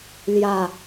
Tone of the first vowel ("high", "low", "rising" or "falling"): low